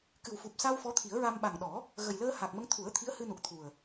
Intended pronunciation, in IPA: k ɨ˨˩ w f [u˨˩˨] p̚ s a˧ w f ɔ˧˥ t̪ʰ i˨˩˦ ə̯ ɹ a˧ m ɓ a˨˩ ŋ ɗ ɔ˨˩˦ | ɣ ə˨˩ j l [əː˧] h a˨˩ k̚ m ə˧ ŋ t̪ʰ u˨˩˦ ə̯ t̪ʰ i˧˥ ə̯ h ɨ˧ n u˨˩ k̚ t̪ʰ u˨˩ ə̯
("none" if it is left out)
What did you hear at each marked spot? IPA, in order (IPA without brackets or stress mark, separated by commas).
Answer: u˨˩, əː˧